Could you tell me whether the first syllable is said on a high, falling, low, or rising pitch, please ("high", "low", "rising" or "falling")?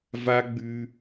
high